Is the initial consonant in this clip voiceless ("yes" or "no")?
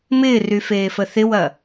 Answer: no